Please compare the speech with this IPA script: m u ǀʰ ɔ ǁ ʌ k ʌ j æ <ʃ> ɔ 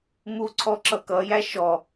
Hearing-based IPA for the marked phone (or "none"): ʃ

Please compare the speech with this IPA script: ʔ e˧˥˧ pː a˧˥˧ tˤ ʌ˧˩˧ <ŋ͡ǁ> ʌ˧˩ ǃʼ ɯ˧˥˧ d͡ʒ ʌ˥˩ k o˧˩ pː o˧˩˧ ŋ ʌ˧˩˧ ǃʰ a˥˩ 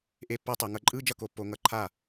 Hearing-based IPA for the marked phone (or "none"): ŋ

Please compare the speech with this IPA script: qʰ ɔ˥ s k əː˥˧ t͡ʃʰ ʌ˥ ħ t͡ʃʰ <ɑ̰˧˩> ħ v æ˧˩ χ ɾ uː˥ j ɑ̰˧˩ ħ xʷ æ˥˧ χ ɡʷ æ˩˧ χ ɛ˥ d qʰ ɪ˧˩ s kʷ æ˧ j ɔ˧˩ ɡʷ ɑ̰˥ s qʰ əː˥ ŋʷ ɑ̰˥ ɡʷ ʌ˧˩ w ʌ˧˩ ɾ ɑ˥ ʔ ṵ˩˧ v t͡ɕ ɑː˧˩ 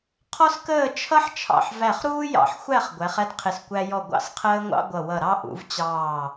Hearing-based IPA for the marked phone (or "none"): ɑ̰˧˩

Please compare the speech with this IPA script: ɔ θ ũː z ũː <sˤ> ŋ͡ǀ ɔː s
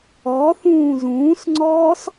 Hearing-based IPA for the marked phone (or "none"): s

